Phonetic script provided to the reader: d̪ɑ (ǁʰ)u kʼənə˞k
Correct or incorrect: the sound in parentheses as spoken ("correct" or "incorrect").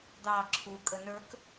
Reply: correct